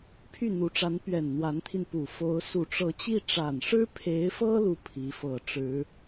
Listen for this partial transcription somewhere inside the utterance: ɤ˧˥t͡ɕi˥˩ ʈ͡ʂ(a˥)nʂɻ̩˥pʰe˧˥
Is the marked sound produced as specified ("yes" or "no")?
no